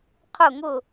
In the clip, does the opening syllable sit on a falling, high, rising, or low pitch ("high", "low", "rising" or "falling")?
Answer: falling